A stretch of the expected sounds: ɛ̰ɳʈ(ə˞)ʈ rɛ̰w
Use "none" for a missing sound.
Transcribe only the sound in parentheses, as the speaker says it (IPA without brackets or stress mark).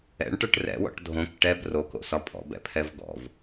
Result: ə˞